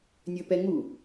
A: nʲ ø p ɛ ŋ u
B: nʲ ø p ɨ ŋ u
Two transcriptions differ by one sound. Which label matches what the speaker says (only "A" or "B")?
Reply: A